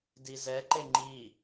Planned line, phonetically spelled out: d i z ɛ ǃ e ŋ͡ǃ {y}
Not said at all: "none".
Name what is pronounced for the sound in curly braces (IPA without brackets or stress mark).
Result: i